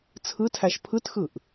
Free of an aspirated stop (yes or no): no